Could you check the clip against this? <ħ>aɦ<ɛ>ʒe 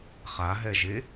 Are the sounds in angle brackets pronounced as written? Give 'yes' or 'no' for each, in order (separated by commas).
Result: no, yes